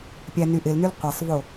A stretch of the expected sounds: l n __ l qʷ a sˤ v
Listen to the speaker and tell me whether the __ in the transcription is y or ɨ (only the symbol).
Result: y